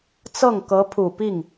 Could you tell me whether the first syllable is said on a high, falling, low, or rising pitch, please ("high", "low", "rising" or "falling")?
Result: falling